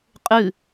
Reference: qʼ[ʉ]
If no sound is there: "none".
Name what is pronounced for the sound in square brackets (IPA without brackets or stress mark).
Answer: ʉ